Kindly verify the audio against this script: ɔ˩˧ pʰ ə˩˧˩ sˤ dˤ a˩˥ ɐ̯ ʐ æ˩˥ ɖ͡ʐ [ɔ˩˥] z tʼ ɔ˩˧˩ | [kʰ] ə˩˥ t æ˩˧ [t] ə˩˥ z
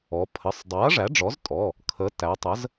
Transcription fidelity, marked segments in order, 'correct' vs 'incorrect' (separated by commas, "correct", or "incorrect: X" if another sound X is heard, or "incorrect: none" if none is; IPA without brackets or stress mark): correct, correct, incorrect: tˤ